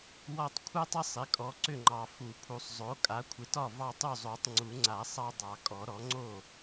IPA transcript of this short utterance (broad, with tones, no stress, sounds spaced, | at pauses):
w ɒ˦ tˤ kʷʰ a˦ tˤ ə˦ sˤ ɪ˩˥ kʼ ɔ˨ ǀ ʏ˥˩ ŋ͡ǃ ɑ˨ f u˨˩˦ pʰ u˨ sˤ zˤ o˩˥ kʼ a˩˥ kʷʰ ɪ˨ t ɒ˥˩ v ɑ˦ tˤ u˥˩ zˤ o˨˩˦ tˤ ŋ͡ǀ u˨˩˦ ŋ͡ǀ a˨˩˦ sˤ ɑ˦ dˤ ɑ˨˩˦ kʼ ɔ˨˩˦ ɾ ɔ˩˥ ŋ͡ǀ o˥˩